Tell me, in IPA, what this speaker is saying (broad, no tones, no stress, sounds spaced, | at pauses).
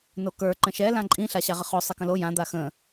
n o k ə˞ ǃ ə̃ ʃ ɛ l ã ǃʼ ĩ ɬ a ɕ a ʁ ə χ o sˤ ɛ k ə̃ l o j ã d̪ a x ə̃